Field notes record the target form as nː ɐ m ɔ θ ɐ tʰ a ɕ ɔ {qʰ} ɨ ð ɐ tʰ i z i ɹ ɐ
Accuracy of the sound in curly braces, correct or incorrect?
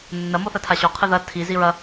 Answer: correct